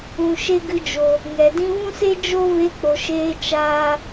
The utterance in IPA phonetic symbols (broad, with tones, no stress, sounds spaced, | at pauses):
ũ˨ ʃ e˦ ɡ ɨ˧ d͡ʒ o˨ | ŋ ɛ˨ d ĩ˧ v ũ˦ s e˦ d͡ʒ o˦ v e˧ k͡p o˨ ʃ eː˧ t͡ʃ aː˦